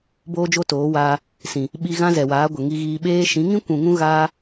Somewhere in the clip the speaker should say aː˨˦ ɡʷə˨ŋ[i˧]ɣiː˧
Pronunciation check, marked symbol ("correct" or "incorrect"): correct